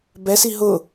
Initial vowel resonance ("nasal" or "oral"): oral